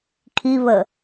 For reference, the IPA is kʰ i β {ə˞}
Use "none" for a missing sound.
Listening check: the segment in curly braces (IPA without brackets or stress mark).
ə